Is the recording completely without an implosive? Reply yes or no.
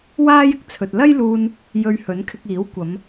yes